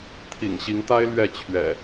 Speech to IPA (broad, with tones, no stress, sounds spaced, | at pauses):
t̪ʰ ḭ˨˩ ŋ ɕ i˨˦ ŋ t̪ a˦ ɪ̯ l ɥ ɛ˥˨ t͡ɕʰ ɥ ɛ̰˨˩